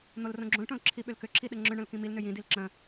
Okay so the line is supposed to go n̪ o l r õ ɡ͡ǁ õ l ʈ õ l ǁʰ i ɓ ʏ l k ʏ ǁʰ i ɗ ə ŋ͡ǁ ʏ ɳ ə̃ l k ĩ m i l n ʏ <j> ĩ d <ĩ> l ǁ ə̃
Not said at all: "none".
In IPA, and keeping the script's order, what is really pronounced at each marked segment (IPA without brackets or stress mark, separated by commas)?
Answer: j, i